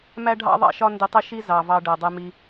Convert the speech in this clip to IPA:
mæ˦ɖʱɑ̰˦ðˤɑ̰˦˨ʃɒ˦ ndɪ˧ tˤɪ˦ʃi˦ zɑ˨ vɑ˧ɖɜ˨dˤɛ˧mi˧

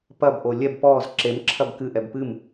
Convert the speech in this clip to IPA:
pɐbʔo lʲɛb pɔz ǁemǁʰɐb kɨʔɛb pɨm

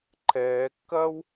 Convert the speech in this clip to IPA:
ǃʰɛːkːɐːw

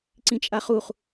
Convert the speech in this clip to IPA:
ǀĩt͡ʃʼaχuχ

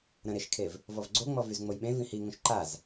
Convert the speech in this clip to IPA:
ɾə̃ɾeʃkʰev | vɔvɡ͡ǀoŋ͡mɔvyz ŋ͡mojɓẽ vĩhiŋõʃ ǃaz

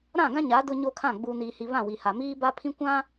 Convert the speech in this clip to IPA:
ɾã˦˨ɡã˦ ɲa˨˦ dʊ˦ɲo˦kʰã˦˨ ɡ͡buː˨niː˨hi˨ βã˦˨wi˨ha˨ miː˦ba˦pʰĩ˦ kʷã˦

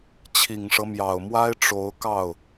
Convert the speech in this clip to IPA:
t͡ɕʰi˨˩ŋʂɤ˦mjɑ˨˩ʊ̯mwa˥ɪ̯ ʈ͡ʂo˧˥ʊ̯ kɑ˥˩ʊ̯

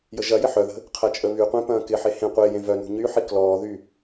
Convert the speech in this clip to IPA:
jəʒɐjɪ ħœðə̤ | qʰɐt͡ʃʼəβyqʷẽ pɐ̃ːkɪħe hẽ qʷe jẽvœnṳ ɲyħi klɔːðy

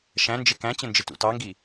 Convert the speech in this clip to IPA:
ʃæ̃nd͡ʒɪ kæ̃t͡ɕə̃nd͡ʒɪtṵ tɑŋɡi

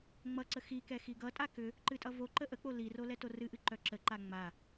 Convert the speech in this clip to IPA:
ŋ͡mʌǀə xikɛ xiɡʌtʼa kʏ | ǃɨtʼʌvoǃə ʔək͡po liro lɛtorɨʔɨ ǃœǁəǃa ŋ͡ma

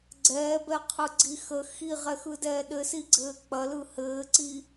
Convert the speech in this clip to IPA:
ɡ͡ǀɛːbɛqʰɯɡ͡ǀi xə xiʁɛxɯdɛː ɗɘsiɡ͡ǀɘː k͡pɐlɯ hɘːǀi

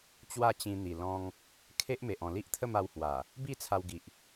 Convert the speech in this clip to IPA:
t͡ɕwa˥˧t͡ɕĩ˧n̪i˨˩ lɔ̃˧ŋ | kʰe˦ʔme˨ʔ ɔ̃˨˩li˦ʔt̪ʰə˥˧m a˧whwa˨˩ | bi˥˧t͡sʰa˧wɡi˨ʔ

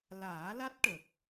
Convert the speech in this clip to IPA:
laː˨˩˦la˦˥t̚ʈə˨˩k̚

